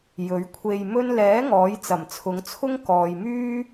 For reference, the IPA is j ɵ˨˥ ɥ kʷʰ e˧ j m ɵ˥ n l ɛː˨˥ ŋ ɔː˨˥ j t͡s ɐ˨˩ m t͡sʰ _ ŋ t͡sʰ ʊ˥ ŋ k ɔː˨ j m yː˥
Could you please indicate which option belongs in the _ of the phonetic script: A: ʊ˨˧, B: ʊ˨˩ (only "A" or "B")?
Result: A